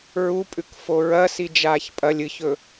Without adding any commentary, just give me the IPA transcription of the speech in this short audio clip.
ɹupʼʉk foɹɐ sid͡ʒaːçpʼɐlʲ ɨçɵ

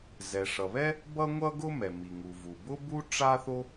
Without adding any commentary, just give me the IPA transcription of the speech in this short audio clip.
zɛ˩ʂʌ˩βɛ˥ | bʌ˥ŋʷʌ˥ɡʊ˥ mɛ˩mi˩ŋu˩vu˩ bʊ˥bu˥ ʈ͡ʂa˥θo˥

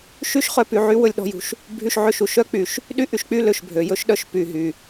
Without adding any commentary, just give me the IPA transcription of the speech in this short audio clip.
ʃy˥ʃχœ˧ py˧ʕy˥ wɵ˧lʲɗɔ̤˥˧jṳ˧ʃ | bʱy˥˧ʃʕø˥˧ʃu˧ ʃœ˥k͡py˩˧ʃ | ɗy˥˧ʔy˧ʃk͡py˥˧ lø˧˩ʃbʱø˩˧ jɵ˥ʃɗœ˧ʃ py˧˩ɦy˧˩

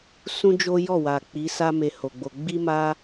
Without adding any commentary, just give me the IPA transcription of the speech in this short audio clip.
sũ˦d͡ʒo˦jɔ˦˨wa˨ k͡pi˨˦sa˦ me˧ho˨ɡ͡bo˧ ɡ͡bi˦ ma˦

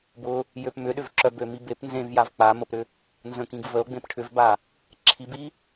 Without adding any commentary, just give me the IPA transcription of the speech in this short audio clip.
bʊ | jøpmʏɗʏvǁœ bømibep nzẽvjav k͡pa məpɾʏ | nzə̃ kĩɡvəo̯ɡ͡bẽp ʈʰʏvba | ǁʰibi

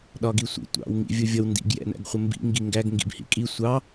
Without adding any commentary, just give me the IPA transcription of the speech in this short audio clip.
ɗɒɡisʷḭ tʷɑ̰w ŋḭvʲʊvʲʌw ndḭɡ jɛ̰næ̰ɡχʷəmbḭ ŋɡiŋɡæɡ ŋɡḭbhḭkʼi sʷɑ

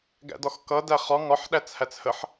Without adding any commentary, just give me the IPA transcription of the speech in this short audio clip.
ɡæ̰dɒxkʌ dæχɒ ŋɒħ ɗæt͡shæt͡shəħ

